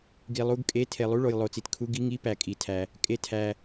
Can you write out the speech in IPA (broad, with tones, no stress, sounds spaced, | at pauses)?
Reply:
ɡ i˨ lˠ u˧˥˧ ɡ kʼ e˧˥˧ tʰ e˨ lˠ u˧˥˧ ɭ o˨ j lˠ o˨ t͡s i˨ t kʰ u˧˥˧ ɡ i˧˥˧ ŋ i˧˥˧ p æ˨ kʼ i˨ tʰ æ˨ | kʼ e˨ tʰ æ˨